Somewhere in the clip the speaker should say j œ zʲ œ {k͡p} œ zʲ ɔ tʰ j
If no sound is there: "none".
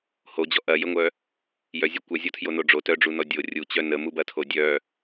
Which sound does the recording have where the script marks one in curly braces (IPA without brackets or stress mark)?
kʷ